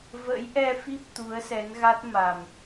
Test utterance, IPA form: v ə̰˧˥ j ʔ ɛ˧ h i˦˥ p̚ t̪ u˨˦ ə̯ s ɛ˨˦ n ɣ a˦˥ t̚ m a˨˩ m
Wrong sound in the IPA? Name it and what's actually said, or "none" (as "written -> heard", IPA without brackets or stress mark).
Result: h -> f